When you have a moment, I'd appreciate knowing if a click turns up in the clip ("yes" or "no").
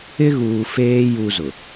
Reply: no